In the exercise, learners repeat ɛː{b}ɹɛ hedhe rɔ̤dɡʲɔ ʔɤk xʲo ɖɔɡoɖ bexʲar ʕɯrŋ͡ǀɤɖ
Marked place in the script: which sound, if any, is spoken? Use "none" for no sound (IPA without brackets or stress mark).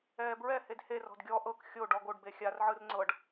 b